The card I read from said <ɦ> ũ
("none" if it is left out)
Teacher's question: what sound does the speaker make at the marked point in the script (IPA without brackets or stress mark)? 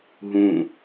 ɦ